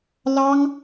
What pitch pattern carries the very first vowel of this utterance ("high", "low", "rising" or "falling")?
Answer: high